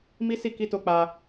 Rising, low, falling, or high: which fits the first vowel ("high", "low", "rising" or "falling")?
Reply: high